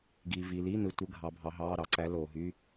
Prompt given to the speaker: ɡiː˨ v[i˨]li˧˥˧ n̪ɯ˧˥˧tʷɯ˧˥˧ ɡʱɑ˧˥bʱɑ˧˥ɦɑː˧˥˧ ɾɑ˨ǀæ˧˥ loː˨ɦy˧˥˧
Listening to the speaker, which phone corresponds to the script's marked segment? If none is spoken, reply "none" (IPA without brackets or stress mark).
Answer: i˨